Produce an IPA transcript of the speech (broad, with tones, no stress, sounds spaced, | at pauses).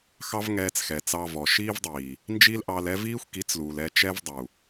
x ɑ˦ v ŋ ɛː˧ t͡s x ɛ˨ t͡s ɑ˧ v ɔ˨ ʃ iː˦ v dˤ iː˨ | n d͡ʒ i˦ l ʔ ɑ˧ l ɛ˦ v iː˦ xʷ k i˨˦ t͡s l uː˨ l ɛ˧ t͡ʃ ɛ˦ v dˤ u˨